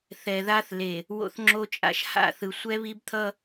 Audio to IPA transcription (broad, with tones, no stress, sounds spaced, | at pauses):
θ ɛ˨ ð a˦ θ l e˨ | w o̰˦ θ ŋ͡ǁ o˦ t͡ʃʼ a̰˦ ʃ h a̰˦˨ θ ɯ˨ sʷ ɛ˦ β i˦ b t̪ʰ ʌ˦